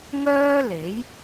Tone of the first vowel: high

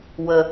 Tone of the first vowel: low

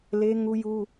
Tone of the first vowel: high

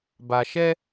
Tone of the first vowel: low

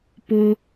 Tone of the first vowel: high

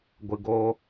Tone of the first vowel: low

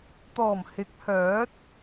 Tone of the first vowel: low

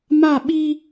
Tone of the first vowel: falling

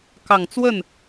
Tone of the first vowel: low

